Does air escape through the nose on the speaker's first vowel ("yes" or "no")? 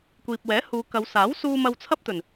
no